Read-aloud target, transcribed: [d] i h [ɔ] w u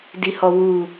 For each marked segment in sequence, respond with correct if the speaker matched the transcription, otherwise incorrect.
correct, correct

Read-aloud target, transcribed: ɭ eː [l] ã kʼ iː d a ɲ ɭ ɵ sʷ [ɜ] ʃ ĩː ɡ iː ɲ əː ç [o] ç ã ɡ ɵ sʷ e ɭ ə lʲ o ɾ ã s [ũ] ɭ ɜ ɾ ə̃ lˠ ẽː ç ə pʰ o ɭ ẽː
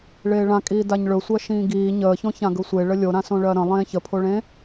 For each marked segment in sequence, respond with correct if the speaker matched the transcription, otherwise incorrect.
incorrect, correct, incorrect, incorrect

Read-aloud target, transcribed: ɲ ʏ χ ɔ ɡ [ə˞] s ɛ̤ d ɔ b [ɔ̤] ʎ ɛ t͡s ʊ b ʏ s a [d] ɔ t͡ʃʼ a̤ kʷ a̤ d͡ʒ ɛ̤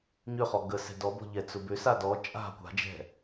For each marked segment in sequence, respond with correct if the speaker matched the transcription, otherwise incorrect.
incorrect, correct, correct

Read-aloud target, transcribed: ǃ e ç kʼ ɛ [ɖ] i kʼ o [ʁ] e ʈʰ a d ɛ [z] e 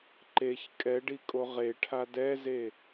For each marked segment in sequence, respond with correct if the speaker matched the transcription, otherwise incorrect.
correct, correct, correct

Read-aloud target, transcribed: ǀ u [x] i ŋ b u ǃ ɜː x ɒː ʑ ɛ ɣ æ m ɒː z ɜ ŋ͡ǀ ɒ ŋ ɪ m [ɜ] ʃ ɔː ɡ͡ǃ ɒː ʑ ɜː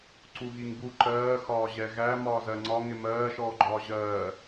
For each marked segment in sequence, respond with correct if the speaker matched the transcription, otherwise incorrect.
incorrect, incorrect

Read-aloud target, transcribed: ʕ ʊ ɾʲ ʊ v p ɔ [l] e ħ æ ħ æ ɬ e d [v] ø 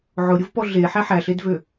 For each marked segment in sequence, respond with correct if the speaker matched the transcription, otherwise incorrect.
incorrect, correct

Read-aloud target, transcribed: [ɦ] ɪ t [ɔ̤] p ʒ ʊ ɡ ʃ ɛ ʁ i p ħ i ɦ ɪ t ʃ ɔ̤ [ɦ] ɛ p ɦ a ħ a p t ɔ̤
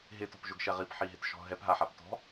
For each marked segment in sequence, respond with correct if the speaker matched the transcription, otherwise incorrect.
correct, correct, correct

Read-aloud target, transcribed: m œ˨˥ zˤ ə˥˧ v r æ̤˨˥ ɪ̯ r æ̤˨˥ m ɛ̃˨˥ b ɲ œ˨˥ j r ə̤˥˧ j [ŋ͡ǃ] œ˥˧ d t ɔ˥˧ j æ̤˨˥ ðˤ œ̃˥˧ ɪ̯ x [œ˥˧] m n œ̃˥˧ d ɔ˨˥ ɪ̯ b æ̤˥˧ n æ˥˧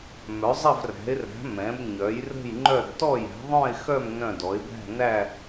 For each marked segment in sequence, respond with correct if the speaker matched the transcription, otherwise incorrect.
correct, correct

